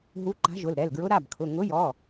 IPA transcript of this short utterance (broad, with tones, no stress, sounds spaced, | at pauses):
ɦ u˨˥ ǃ a̤˨˥ ʒ ʊ˩˧˩ l ɾ ɛ˩˧˩ l ɡ ɹ ʊ˨˥ ɾ a˩˧˩ b kʰ ʊ˩˧˩ ŋ ʊ˨˥ j ɔ˩˧˩